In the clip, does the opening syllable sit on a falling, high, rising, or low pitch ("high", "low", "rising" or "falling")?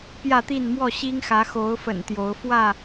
falling